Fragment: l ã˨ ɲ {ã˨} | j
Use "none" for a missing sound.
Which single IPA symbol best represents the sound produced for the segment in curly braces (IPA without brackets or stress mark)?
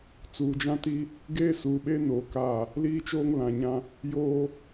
ã˦